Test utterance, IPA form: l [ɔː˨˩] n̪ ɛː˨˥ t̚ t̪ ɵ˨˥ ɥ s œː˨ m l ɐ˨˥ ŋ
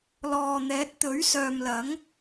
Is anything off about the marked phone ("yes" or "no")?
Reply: yes